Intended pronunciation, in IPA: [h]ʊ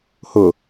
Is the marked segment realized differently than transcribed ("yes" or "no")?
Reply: no